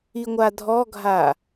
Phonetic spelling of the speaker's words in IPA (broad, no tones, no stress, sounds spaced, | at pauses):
i ŋʷ a dʱ ɔ ɡʱ a